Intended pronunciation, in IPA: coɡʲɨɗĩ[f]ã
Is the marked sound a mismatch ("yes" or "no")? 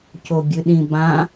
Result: yes